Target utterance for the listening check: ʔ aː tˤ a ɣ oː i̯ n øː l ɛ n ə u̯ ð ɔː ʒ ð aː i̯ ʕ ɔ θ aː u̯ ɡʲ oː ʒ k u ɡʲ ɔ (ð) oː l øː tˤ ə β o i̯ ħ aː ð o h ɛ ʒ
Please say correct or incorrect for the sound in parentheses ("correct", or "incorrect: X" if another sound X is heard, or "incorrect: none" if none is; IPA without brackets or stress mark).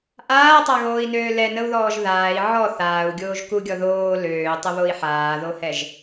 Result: correct